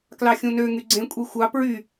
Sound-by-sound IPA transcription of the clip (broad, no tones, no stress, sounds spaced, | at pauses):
k l ɑ xʲ ũ n ø ŋ y ɡ͡ǀ ẽ kʷʼ i xʷ ɑ p ɹ y